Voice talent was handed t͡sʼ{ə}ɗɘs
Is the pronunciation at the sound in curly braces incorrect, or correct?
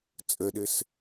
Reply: correct